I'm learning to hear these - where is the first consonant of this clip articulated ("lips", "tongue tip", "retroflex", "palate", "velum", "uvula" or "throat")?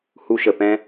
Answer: throat